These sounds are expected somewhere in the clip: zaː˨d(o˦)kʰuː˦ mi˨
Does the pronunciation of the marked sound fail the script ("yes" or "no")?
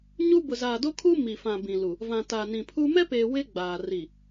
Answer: no